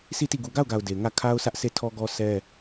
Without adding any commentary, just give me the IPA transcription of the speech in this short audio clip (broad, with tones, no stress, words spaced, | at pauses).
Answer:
si˦˨ti˦˨ ɡu˨ɡa˦˨ʊ̯ɡa˨ʊ̯ de˨ŋä˦˨ kʰa˦ʊ̯sʰä˦ʔ se˦˨tʰɔ˦ɡɔ˦ sʰɛ˦